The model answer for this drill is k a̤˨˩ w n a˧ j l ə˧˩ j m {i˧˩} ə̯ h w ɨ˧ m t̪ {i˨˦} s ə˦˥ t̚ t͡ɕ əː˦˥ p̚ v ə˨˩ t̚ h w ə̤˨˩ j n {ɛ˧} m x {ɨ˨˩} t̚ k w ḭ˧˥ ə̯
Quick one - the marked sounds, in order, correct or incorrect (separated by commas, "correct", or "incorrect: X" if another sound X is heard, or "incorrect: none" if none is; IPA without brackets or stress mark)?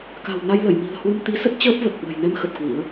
incorrect: i̤˨˩, correct, correct, incorrect: ə˨˩